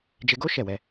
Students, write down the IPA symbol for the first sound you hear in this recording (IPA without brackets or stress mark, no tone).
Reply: d͡ʒ